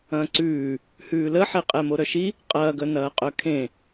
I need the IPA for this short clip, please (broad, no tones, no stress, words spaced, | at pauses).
ɐ̃ːǀʉː | hʉːləħe qʼɛmoɾœʃi | qʼɐːɡœnɐːqʼœ kʰẽ